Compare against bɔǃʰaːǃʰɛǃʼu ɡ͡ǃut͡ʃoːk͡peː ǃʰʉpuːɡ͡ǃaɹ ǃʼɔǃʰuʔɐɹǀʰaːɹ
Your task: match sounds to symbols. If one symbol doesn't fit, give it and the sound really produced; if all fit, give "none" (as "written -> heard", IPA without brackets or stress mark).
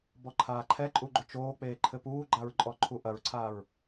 ʉ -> ɘ